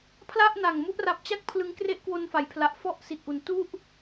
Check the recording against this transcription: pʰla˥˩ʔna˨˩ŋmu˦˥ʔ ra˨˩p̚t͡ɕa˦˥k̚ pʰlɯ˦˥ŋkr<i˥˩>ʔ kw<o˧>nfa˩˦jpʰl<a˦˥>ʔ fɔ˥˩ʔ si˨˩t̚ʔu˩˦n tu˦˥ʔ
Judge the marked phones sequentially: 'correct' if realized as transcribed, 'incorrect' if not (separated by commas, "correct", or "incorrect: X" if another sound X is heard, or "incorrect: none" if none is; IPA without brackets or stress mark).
incorrect: e˥˩, correct, incorrect: a˨˩